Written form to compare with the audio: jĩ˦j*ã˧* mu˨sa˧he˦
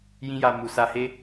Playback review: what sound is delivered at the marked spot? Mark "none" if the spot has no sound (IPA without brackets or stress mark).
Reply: a˧